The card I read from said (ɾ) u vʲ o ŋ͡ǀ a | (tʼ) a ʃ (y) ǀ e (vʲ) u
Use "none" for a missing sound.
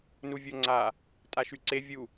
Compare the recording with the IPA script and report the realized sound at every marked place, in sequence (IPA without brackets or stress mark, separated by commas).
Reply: n, tʼ, y, vʲ